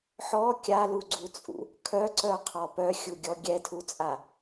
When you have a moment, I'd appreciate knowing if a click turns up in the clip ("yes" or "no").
yes